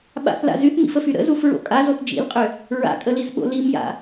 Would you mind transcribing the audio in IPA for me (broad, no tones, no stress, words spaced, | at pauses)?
ɓa̰θla̰ zyθmḭfəfy ɾə̰zufɹo̰ kʼazoθ d͡ʒḭlqʼʏ | ɹa̰kʼəlizɓo̰ limja̰